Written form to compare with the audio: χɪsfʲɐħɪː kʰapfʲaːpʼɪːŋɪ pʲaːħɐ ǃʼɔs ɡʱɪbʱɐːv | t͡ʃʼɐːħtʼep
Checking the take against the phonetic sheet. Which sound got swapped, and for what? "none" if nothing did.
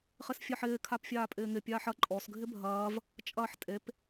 none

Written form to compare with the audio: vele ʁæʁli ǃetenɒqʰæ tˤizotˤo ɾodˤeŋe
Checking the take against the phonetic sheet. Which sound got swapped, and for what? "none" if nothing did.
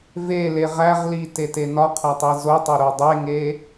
ǃ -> t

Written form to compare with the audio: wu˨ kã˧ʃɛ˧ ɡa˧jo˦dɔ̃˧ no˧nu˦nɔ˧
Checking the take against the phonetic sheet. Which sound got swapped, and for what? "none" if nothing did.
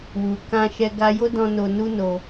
ɔ˧ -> o˧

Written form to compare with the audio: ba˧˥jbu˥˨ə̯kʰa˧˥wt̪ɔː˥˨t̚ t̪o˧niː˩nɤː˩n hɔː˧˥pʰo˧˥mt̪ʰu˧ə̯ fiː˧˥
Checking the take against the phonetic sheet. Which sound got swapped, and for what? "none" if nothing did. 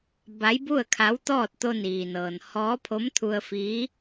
none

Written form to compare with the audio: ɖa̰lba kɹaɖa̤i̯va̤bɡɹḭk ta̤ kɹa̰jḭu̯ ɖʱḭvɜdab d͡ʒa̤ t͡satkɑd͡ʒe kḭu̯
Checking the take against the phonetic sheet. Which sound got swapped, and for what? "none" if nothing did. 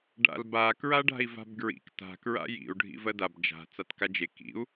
ɑ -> a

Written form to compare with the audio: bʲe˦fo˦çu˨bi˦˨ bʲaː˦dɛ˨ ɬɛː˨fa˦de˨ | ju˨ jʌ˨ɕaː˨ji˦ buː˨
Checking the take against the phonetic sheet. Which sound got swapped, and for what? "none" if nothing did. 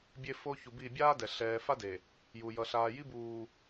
ɕ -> ɬ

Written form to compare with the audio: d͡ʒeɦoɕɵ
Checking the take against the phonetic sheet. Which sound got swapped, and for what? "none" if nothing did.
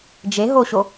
ɵ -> o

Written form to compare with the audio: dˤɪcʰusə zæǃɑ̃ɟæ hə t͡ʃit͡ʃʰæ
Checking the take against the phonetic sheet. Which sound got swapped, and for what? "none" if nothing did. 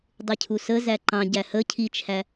t͡ʃ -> cʰ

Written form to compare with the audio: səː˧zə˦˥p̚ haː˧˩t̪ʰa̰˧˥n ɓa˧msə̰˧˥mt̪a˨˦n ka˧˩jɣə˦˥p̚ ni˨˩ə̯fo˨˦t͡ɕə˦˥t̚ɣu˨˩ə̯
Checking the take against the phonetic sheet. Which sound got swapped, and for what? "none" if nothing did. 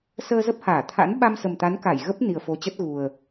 ə̰˧˥ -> ə˨˩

